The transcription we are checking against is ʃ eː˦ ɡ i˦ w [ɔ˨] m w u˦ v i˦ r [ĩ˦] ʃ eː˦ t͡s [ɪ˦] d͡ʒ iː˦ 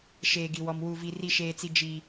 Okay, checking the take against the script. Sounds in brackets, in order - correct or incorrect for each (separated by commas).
incorrect, incorrect, incorrect